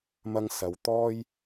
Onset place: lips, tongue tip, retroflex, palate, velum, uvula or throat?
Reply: lips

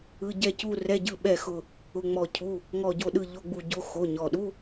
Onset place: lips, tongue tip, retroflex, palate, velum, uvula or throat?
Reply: palate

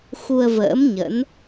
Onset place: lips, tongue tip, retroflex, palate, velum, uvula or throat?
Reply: velum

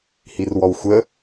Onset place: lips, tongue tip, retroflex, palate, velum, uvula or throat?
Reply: throat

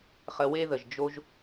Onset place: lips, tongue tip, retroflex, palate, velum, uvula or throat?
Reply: uvula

